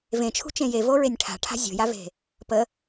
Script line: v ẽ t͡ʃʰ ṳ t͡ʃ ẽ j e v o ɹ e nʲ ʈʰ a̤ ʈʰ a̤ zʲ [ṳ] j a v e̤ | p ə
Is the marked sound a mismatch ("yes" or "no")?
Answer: yes